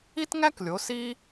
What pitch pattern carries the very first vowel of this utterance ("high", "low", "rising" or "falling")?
high